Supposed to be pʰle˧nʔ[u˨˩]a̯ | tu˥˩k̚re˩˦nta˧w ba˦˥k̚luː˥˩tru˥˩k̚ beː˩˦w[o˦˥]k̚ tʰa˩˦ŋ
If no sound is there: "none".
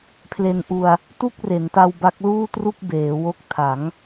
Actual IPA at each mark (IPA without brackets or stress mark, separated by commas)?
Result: u˧, o˦˥